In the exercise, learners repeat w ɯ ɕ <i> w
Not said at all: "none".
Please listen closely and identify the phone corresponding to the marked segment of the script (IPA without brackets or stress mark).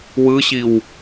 i